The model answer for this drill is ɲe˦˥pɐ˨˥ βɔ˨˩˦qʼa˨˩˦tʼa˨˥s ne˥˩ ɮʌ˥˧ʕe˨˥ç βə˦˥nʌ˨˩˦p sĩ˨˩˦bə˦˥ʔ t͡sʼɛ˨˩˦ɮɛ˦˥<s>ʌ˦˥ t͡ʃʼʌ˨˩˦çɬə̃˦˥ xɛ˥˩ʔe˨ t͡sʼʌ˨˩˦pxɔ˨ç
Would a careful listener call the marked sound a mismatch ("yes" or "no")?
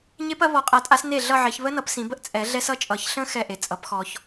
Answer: no